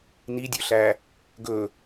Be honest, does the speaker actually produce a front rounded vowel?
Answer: yes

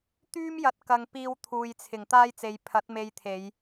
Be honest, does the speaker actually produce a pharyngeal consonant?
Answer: no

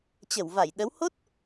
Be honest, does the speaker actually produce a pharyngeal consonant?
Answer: no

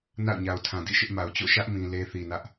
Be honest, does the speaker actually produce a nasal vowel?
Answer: yes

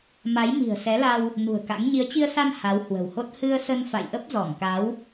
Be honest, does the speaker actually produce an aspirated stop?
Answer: no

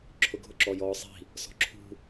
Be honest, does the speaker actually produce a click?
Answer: yes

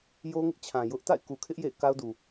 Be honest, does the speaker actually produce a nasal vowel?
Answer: yes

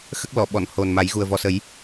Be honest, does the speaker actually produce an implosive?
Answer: yes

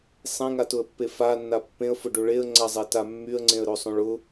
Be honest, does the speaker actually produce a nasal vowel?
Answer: yes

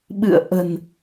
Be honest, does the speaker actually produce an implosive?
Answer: yes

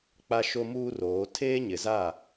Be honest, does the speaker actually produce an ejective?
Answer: no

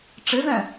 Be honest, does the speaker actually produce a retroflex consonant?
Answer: yes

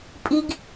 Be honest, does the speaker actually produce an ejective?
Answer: yes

